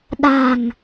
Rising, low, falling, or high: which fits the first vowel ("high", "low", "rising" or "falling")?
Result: low